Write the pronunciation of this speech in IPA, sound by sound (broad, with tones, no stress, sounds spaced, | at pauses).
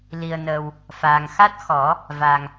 l i˨˩ ə̯ n ə˨˩ w | f aː˨˩ ŋ x a˦˥ t̚ x ɔ˨˩˦ | v a˨˩ ŋ